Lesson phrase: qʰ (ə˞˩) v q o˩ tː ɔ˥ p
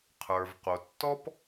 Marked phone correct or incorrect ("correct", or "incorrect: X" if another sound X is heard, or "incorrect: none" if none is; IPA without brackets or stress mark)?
correct